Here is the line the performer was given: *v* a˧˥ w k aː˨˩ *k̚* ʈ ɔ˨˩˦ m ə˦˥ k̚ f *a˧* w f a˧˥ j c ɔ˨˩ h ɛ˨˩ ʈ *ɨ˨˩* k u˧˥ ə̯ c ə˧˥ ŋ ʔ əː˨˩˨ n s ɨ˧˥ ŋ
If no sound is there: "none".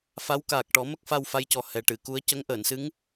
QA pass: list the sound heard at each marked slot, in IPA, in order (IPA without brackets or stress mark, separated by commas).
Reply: f, k̚, a˧, ɨ˨˩˨